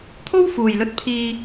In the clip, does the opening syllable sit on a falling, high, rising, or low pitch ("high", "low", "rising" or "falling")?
high